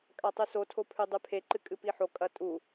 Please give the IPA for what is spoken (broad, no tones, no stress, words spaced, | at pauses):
kʼatˤʉso tʰopʰʉdˤʉpʰe ǃɨkʼɨpiħo kʼɐtʼu